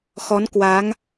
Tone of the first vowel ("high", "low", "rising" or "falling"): rising